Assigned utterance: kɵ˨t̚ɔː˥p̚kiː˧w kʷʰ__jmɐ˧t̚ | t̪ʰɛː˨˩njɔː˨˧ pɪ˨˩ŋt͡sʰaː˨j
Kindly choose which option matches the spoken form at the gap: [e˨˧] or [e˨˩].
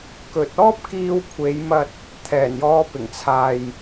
e˨˧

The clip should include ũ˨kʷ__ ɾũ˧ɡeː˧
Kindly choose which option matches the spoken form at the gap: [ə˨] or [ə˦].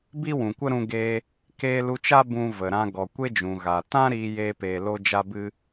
ə˦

